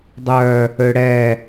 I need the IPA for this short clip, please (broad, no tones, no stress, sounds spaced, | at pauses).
dˤ œ | ø ɽ ɛ